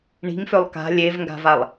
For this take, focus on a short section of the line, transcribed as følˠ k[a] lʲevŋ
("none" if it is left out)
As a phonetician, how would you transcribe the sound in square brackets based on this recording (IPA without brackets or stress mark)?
a̤